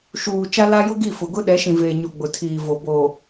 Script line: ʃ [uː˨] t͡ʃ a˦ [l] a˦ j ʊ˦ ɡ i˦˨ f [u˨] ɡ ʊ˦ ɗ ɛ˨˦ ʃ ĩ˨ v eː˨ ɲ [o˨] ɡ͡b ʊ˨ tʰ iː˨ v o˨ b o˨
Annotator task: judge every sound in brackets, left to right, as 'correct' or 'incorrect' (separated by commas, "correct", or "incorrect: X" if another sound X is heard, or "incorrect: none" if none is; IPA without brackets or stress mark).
correct, correct, incorrect: ʊ˨, correct